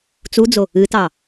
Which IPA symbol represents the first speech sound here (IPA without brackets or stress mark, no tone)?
t͡s